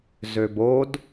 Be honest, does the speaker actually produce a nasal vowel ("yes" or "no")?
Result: no